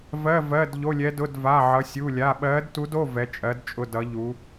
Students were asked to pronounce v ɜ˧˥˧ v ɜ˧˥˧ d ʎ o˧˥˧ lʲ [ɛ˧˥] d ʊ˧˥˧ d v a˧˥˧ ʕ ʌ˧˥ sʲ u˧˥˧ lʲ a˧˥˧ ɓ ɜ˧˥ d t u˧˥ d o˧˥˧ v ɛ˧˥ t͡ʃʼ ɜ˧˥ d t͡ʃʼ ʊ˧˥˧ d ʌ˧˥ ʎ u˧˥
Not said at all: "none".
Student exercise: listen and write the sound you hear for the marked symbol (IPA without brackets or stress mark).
ɛ˧˥